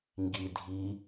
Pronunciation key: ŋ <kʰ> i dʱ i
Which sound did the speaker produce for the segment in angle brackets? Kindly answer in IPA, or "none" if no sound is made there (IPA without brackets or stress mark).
ɡ